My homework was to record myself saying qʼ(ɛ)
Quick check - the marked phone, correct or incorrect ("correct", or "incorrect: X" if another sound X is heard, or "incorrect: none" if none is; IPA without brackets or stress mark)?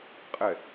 correct